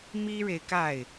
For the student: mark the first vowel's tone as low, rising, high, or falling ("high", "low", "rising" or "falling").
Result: high